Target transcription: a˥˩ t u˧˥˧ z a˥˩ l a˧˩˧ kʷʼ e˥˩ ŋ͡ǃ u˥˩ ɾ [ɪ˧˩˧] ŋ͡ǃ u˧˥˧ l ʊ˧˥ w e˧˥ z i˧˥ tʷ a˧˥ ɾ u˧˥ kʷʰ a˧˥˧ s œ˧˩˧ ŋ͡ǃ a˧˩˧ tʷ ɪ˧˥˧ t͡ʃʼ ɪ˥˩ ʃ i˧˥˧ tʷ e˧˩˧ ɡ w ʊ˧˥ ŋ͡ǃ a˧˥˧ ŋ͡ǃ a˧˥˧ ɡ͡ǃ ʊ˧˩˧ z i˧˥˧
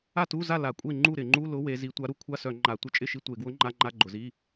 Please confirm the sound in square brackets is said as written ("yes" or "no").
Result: yes